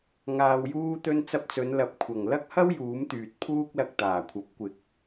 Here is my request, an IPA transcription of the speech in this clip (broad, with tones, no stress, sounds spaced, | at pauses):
ŋ aː˨ w j uː˧ t̪ ɵ˧ n t͡s ɐ˧ p̚ t͡s ɵ˨˧ n l ɐ˨˥ p̚ kʷʰ ɐ˨˩ ŋ l ɐ˥ k̚ h ɐ˥ w j uː˨˥ m t̪ yː˨ t̚ pʰ uː˥ k̚ l ɐ˧ k̚ t̪ aː˨˩ kʷʰ ɐ˨˥ p̚ kʷ ɪ˨ k̚